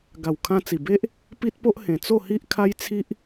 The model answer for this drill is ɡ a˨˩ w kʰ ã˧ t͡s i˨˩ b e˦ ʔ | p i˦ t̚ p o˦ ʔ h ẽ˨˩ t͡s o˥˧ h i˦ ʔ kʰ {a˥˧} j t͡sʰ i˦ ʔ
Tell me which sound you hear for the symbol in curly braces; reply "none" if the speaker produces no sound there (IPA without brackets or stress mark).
a˦